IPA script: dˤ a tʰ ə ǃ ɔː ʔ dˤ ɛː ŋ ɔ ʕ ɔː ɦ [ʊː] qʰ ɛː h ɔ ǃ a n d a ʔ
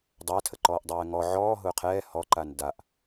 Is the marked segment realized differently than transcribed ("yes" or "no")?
no